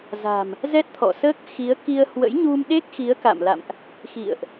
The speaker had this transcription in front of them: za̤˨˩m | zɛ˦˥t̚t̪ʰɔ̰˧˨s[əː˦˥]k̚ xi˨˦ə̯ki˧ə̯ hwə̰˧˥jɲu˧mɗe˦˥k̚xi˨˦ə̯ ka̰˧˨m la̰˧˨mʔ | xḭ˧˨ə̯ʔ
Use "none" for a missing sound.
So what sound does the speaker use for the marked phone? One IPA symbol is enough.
əː˦˥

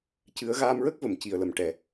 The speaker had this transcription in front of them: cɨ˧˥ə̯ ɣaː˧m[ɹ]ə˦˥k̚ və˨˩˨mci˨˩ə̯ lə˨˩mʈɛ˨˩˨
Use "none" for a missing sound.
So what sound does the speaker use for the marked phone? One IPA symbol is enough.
ɹ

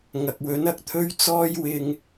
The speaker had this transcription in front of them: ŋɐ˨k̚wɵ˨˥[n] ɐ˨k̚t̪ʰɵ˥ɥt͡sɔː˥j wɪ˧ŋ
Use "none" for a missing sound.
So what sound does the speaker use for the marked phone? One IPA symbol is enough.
n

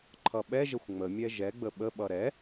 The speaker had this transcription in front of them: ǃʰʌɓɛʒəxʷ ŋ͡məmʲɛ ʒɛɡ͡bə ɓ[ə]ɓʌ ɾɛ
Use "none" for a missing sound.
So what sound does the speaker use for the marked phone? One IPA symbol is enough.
ə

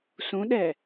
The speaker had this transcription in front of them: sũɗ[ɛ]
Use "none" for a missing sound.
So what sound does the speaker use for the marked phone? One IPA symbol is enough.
ɛ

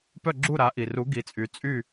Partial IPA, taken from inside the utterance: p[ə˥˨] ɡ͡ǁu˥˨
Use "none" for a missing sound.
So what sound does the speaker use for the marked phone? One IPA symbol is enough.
œ˥˨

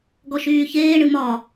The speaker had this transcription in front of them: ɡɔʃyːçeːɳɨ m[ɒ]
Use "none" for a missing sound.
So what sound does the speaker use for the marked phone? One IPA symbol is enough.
ɒ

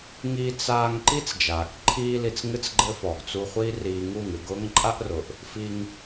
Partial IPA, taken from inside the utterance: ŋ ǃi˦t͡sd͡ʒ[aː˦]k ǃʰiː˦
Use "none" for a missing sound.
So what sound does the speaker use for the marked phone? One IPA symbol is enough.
aː˨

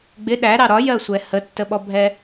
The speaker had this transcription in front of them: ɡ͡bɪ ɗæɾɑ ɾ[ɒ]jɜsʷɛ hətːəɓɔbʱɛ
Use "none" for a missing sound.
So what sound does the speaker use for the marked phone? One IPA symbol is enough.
ɒ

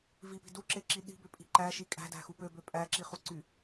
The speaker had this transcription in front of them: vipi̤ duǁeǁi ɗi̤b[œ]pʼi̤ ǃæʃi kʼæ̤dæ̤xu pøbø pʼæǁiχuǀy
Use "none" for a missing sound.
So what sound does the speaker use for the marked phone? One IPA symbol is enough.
ø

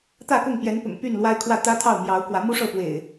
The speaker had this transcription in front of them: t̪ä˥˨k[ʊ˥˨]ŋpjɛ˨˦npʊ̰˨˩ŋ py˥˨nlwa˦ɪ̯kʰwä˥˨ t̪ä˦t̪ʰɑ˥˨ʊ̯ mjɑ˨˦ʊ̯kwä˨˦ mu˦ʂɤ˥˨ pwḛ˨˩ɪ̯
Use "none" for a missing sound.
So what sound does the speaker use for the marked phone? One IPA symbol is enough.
ʊ˥˨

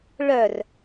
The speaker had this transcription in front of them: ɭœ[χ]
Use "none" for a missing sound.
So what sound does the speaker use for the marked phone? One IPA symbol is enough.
r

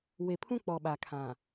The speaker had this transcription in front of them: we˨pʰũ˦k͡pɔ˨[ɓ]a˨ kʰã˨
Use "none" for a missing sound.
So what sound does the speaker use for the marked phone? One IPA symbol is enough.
ɓ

